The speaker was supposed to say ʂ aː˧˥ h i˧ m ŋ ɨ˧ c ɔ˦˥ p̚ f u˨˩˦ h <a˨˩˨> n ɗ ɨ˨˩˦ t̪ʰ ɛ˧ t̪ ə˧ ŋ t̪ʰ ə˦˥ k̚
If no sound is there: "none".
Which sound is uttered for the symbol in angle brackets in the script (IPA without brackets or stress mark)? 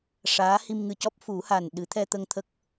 a˨˩